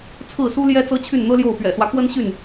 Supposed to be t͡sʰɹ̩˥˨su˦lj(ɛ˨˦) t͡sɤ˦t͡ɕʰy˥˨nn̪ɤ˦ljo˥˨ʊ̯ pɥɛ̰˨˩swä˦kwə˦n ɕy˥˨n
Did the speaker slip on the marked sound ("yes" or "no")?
yes